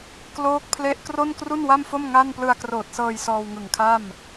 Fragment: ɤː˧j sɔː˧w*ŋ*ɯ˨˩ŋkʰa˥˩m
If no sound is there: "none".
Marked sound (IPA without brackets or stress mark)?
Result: ŋ